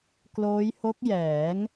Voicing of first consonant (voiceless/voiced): voiceless